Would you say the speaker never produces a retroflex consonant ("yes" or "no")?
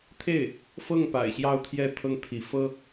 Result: yes